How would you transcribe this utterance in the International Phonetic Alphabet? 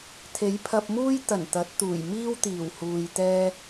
t̪ʰ e˨˥ j pʰ ɐ˧ p̚ m uː˥ j t̪ ɐ˨˩ n t̪ ɐ˨˥ t̚ t̪ uː˨˩ j m iː˥ w t̪ iː˨˩ w h uː˨ j t̪ ɛː˧

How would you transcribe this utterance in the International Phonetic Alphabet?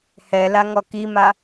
h ɛ l a ŋ ɔ k i m a

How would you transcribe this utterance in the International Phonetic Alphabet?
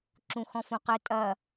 ǁ ũ x ɔ̃ f õ q ɘ tʼ ɐ

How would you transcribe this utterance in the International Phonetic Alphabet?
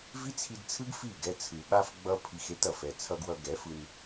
v i˦ t͡sʰ i˧ d t͡sʰ ɯ˦ ɡ f i˦˨ ɡ ɛ˧ t͡sʰ ɯ˨ ɓ a˦ f ɡ͡b ʌ˦ pʰ i˧ x e˦ t ʌ˨ f ɛ˧ t͡sʰ ʌ˧ ɡ w ʌ˧ ɡ ɛ˨˦ f ɯ˧ n

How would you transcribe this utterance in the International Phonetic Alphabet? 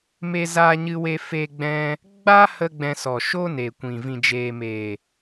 m e˧ z aː˧ ɲ ɨ˧ w e˧ f e˧ ɡ͡b ɛ̃˦ | ɡ͡b a˦ h ə˧ ɡ͡b ɛ̃˧ s ɔ˨ ʃ o˦ n e˨ kʷ ĩ˨ v ĩ˨ d͡ʒ eː˨ m eː˨

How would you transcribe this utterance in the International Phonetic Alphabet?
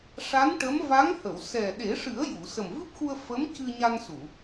ʂ a˧˥ n ʈ ə˧˥ m v a˧˥ ŋ h ə˨˩˨ w s ɛ˨˩ ɗ e˨˩˦ ʂ ɨ˨˩˦ ə̯ j u˨˩˨ s ə˨˩ m v ɨ˦˥ p̚ x u˧ ə̯ f ə˧˥ m c ɨ˧ ɲ a˧ n s u˨˩˨

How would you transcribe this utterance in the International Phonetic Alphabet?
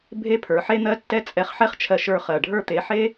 bʱ e˦ pʰ ə˞˨˦ ħ e˦ n̪ ɜ˦ tː ɛ˦ t͡sʼ ɛ˧ χ ħ ɛ˦ χ t͡ʃʰ ɜ˧ ʃ ə˞˧ χ ɜ˨ ɖʱ ə˞˧ t̪ e˨˦ ħ e˦

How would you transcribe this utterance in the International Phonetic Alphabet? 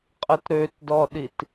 qʼ ə t ɾ ø t d ɔ ɗ i t

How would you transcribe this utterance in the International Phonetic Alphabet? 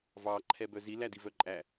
v ɑ ǃʰ ɛ b œ z i l æ d i v œ ǃʼ æ

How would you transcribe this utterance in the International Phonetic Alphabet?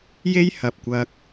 j e˥ j h ɐ˨ p̚ kʷ ɐ˧ k̚

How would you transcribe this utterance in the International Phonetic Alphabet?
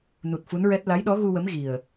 n u˨˩ t̚ f u˧˥ n ɹ ɛ˦˥ t̚ l a˧˥ j ɗ ɔ˧˥ ɣ u˧ w ə˧˥ m ɣ i˨˩ ə̯

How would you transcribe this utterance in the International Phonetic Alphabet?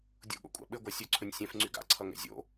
dʲ o̰ ɠ o̰ kʷʼ a̰ ɓ ɘ ɡʷ a sʲ ɵ ǀʰ ɵ nʲ sʲ ɛ̃ f ŋ͡ǀ y ɡ a̰ ǀʰ ʌ ŋ ɛ̰ zʲ o̰

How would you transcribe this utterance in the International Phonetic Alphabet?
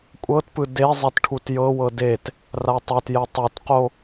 kʷʼ ɤ t p ɯ d e zˤ ɛ t ʈʰ u t j ɤ w ɤ d e t | r a tˤ ɛ t j ɛ tˤ u t q o

